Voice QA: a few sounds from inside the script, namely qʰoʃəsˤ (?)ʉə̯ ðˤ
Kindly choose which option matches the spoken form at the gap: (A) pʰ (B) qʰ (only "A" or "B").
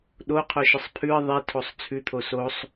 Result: A